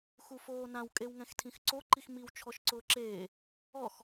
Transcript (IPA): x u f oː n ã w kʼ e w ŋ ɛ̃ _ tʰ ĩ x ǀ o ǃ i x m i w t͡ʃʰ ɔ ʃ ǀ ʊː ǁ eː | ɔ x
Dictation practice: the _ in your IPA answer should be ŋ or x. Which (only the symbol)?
x